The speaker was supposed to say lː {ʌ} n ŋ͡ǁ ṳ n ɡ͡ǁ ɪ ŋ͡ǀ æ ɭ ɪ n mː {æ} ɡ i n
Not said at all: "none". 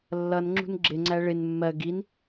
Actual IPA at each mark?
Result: ʌ, ɜ

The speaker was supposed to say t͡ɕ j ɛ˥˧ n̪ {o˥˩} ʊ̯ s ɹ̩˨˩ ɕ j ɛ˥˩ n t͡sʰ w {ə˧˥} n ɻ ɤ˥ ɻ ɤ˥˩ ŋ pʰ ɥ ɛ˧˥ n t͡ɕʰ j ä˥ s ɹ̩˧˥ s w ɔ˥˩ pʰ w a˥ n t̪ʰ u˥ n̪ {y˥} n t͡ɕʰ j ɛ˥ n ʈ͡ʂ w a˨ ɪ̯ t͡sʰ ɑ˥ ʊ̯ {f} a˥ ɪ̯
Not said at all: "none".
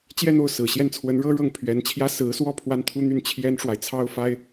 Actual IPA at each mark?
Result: o˥˩, ə˧˥, y˥˩, f

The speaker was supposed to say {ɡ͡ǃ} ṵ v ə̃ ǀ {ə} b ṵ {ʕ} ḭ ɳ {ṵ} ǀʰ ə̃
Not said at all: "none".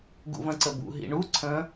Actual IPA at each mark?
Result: ɡ, ə, ɦ, u

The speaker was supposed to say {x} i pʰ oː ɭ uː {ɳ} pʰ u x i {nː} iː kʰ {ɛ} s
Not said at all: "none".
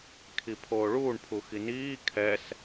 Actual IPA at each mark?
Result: kʰ, ɳ, n, ɛ

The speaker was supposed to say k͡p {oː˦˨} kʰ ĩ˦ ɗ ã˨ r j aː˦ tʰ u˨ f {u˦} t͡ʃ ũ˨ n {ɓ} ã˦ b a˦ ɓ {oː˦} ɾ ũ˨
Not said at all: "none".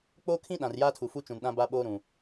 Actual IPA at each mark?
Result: oː˦, u˦, ɗ, oː˦

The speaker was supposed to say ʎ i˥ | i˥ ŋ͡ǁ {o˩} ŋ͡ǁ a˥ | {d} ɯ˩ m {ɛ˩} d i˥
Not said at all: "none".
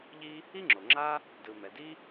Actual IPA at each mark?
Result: o˩, d, ɛ˩

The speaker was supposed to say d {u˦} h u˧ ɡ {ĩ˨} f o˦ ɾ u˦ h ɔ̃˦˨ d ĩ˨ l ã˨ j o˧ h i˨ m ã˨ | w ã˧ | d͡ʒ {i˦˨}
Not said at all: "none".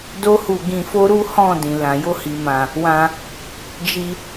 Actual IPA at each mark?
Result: o˦, ĩ˧, i˧

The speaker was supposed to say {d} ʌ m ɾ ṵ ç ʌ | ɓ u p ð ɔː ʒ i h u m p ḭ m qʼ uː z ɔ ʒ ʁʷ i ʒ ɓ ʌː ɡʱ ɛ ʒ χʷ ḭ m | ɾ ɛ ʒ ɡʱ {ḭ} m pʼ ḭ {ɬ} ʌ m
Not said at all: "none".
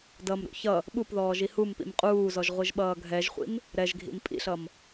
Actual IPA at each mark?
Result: d, ḭ, ɬ

